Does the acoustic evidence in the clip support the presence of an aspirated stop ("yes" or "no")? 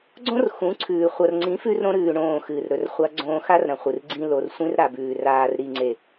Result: yes